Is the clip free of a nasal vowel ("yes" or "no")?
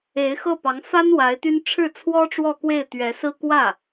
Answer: yes